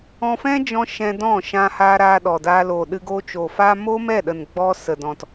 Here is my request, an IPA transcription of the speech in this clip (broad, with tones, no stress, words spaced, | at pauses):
ɔ̃˧fɛ̃˦d͡ʒɔ̃˧ ʃɛ̃˧dɔ̃˦˨ ʃã˧haː˧ ɾaː˧ɗɔ˨daː˧ loː˨ɗɨ˧ ɡoː˧t͡ʃo˨faː˦ mo˦mɛ˦˨ɗə˨n ɡ͡bɔ˧ sə˨dɔ̃˨t